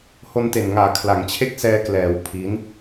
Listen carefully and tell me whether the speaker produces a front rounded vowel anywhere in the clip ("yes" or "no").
no